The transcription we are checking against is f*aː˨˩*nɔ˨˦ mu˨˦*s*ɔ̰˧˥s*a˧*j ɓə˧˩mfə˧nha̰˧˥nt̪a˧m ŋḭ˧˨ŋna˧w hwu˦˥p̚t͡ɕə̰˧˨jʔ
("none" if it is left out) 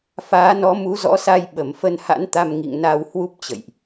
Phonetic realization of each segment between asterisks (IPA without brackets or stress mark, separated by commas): aː˨˦, z, a˧